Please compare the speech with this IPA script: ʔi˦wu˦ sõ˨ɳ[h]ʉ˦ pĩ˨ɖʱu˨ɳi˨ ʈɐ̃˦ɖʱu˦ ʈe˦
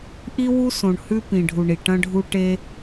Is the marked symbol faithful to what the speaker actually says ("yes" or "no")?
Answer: yes